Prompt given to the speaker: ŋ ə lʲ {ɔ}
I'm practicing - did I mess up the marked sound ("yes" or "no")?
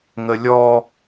no